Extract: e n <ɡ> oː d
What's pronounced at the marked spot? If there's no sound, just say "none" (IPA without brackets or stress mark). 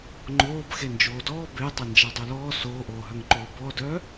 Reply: d͡ʒ